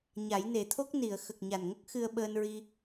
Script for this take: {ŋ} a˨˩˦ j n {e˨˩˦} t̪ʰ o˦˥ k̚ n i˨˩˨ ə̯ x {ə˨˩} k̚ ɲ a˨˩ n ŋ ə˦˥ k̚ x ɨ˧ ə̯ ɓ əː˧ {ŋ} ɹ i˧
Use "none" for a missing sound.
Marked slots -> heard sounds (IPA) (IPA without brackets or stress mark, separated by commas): ɲ, e˨˩˦, ə˨˩, n